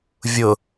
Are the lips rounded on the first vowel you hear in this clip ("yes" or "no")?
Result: yes